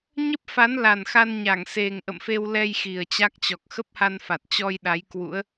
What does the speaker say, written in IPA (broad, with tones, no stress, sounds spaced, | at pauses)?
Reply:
ɲ ə˦˥ p̚ f a˨˦ n l a˨˩ n x a˧ n ɲ a˧˩ ŋ s e˨˩ ŋ ʔ ə̰˧˨ m f e˧ w l ɛ˧ j x i˨˩ ə̯ t͡ɕ a˦˥ k̚ t͡ɕ ɔ˨˩ k̚ x ə˦˥ p̚ h a˧ n f a˨˩ t̚ t͡ɕ ɔ˧ j ɗ a˨˦ j k w ṵ˧˥ ə̯